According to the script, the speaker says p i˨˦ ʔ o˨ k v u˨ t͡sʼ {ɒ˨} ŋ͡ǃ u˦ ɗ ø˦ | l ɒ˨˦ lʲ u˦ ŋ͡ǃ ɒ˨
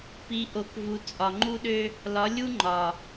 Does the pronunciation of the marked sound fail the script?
no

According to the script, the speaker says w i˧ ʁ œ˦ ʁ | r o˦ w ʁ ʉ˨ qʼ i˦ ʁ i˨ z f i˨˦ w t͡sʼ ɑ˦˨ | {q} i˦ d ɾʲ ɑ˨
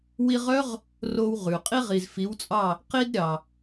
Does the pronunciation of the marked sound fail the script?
no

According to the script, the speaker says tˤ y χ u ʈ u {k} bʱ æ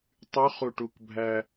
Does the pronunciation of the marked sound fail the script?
no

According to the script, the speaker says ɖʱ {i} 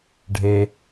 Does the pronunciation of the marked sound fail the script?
yes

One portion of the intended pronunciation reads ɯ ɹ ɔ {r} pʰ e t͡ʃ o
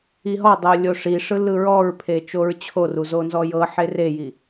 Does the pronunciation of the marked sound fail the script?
yes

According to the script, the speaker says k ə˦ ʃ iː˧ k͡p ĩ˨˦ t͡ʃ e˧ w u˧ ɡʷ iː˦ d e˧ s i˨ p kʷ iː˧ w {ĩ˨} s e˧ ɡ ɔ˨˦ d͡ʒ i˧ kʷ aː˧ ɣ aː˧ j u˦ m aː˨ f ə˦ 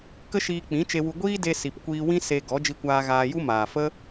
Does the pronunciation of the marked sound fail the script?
yes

